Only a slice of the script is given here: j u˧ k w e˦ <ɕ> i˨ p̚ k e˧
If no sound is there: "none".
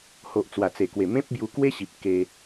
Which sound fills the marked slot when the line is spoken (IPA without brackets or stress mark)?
ɕ